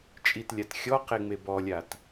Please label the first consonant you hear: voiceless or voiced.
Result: voiceless